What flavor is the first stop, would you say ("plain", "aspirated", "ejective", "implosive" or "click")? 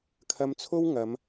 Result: aspirated